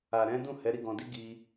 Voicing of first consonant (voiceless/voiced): voiced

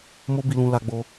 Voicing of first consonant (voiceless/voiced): voiced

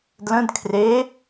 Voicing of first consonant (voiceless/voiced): voiced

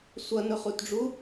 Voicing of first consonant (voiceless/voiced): voiceless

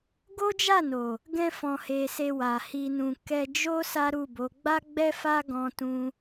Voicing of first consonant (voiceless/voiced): voiced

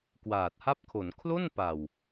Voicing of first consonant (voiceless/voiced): voiceless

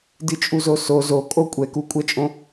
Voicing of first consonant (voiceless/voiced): voiced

